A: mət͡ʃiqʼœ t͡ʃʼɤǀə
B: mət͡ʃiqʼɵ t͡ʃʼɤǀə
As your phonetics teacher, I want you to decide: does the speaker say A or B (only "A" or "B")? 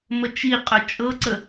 B